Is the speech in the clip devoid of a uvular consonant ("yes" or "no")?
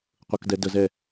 no